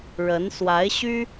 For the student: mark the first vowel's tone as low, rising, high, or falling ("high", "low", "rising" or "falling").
rising